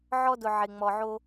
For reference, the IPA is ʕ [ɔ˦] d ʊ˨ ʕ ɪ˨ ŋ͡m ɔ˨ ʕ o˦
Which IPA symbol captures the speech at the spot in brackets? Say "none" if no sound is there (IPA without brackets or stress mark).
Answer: ɔ˦